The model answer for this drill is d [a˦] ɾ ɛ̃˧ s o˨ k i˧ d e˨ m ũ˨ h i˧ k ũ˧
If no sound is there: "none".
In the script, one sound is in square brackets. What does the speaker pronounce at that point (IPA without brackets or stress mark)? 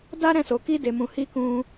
a˦